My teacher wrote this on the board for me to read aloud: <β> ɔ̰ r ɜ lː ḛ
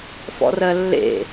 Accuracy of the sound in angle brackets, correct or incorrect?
incorrect